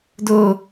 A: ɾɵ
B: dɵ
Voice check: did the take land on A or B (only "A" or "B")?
B